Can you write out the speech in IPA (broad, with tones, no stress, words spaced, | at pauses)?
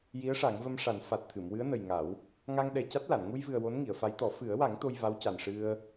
ji˧˥ə̯ʂa˨˩˦ŋvə˧mʂa˨˩˦n fa˨˩t̚t̪ʰɨ˨˩˨mwɨ˧˥ə̯nə˨˩j ŋa˨˩˦w | ŋa˧ŋɗɛ˨˩ ca˦˥t̚la˨˩˨n ŋu˧jvɨ˨˩ə̯ wo˧˥nŋi˨˩˨ə̯fa˧˥jt̪ɔ˨˩˦ fɨ˨˩˦ə̯wa˨˩˦ŋ t̪o˧jva˧˥wca˨˩n ʂɨ˧ə̯